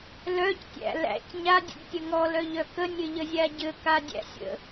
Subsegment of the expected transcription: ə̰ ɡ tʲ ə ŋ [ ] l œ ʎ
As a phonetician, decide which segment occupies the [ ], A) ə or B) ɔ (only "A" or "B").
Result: B